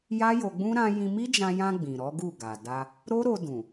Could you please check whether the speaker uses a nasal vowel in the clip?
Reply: yes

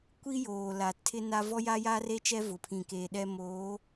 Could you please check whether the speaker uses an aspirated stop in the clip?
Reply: yes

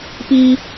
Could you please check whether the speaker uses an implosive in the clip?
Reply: no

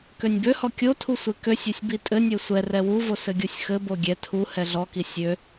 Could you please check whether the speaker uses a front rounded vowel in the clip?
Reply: yes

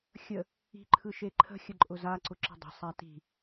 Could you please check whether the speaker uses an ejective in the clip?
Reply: yes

